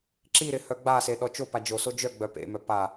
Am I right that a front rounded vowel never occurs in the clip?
no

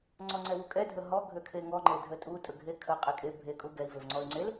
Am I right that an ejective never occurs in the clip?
no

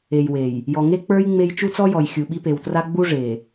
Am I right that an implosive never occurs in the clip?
no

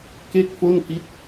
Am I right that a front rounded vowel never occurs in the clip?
yes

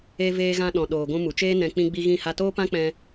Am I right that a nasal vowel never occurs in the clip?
no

